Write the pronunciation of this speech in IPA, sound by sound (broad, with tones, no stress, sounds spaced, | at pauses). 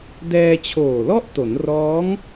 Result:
d ɛː˧ t͡ɕʰ oː˨˩ l ɔ˥˩ ʔ t o˩˦ n r ɔː˦˥ ŋ